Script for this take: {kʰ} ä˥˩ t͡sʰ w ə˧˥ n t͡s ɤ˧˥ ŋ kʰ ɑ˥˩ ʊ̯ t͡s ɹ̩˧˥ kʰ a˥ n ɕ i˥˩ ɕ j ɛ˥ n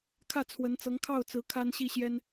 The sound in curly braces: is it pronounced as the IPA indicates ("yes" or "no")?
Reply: yes